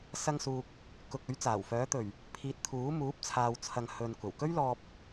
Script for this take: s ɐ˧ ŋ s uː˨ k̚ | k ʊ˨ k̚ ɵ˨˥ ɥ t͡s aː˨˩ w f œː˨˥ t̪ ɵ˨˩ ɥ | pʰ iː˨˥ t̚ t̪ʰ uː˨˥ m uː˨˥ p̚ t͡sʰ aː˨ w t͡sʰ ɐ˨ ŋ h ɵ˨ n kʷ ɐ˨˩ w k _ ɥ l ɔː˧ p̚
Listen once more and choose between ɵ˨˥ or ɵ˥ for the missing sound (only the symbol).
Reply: ɵ˥